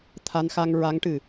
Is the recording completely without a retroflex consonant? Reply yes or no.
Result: no